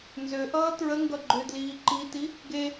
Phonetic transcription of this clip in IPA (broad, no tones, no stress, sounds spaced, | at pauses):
n z ø ʔ ʌː t ɹ ə ŋ ɡ ʌ ɡ͡ǃ ø d l iː ǃ i t i | ɡ e